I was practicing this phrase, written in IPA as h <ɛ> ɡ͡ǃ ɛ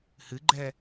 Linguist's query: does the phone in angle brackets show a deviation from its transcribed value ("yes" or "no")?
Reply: yes